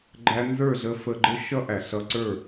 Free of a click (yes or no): no